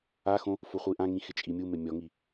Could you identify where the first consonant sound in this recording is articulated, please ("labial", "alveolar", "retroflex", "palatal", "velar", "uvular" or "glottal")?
velar